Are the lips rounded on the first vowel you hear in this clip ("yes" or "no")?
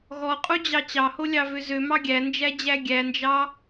yes